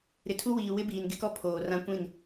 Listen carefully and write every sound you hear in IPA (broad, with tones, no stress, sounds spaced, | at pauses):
ɾ ɪ˨ tʰ u˦ w iː˨ w ɪ˦ b iː˨ n ɡ ɪ˦ k ɔ˦ pʰ oː˨ r ã˦ kʷ ĩ˦˨ n